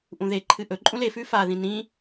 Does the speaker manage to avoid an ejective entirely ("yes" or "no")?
no